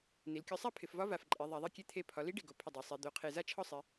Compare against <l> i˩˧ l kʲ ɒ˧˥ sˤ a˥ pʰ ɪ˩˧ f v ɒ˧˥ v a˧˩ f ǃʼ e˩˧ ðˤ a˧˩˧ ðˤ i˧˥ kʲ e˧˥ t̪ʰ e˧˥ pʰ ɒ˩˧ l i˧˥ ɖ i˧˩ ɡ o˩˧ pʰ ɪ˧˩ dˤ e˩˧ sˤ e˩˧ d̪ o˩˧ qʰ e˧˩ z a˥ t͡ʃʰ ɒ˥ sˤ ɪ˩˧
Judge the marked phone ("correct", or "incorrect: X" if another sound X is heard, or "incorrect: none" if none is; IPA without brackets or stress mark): incorrect: n